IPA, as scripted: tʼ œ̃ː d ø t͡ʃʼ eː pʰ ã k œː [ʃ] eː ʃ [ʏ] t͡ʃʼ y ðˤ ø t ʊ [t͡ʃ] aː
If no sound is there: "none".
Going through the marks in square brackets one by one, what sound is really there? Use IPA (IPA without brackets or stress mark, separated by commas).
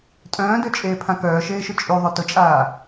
ʃ, ʏ, t͡ʃʼ